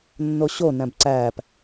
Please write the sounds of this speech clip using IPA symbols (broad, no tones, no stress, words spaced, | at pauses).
nːoɕonæ̃b ǀæp